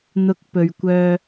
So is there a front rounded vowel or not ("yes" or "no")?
yes